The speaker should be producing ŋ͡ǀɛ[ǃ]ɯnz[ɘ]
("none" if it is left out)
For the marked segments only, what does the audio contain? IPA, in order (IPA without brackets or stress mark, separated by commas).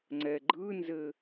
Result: ɡ͡ǃ, ɘ